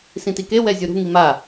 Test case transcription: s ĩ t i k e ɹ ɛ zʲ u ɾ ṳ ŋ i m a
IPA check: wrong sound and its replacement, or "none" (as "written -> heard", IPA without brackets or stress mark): ɹ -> w